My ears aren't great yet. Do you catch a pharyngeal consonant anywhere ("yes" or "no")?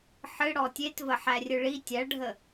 yes